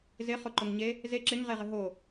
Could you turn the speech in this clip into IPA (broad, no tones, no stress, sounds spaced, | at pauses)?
z ɪ χ ʊ ǃ ʊ ŋ ɲ e | z e ǁ ɪ ŋ ʁ e ʁ ɪ ɦ o